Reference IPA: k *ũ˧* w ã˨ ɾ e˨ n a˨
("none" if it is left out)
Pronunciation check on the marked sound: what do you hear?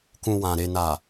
ũ˧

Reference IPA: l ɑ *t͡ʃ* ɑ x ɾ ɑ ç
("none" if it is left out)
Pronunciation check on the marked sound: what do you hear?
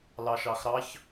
ʃ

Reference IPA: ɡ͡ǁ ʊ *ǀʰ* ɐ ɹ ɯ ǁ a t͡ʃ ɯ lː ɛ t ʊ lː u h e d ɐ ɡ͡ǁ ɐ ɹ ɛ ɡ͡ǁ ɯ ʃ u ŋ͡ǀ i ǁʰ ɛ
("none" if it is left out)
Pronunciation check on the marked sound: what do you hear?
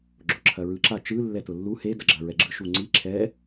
ǁʰ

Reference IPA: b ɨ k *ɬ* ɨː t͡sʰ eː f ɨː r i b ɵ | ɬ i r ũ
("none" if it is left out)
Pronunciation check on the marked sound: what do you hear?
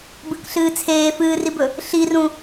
ɬ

